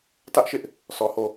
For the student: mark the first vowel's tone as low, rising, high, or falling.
high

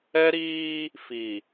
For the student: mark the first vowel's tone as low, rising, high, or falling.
high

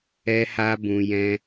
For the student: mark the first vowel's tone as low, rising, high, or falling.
high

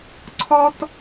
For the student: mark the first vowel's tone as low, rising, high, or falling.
high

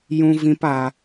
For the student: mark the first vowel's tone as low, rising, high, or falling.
high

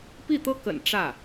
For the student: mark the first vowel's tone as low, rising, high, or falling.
falling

